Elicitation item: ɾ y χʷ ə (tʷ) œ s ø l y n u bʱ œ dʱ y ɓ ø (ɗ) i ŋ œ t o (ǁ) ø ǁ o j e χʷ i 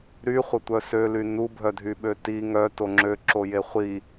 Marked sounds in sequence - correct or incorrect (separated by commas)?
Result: correct, incorrect, incorrect